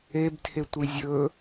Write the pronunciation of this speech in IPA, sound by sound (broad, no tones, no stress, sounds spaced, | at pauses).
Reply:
e b tʰ e tʷ i zʲ ɵ